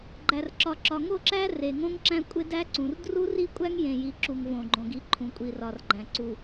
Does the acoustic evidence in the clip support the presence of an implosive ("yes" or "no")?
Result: no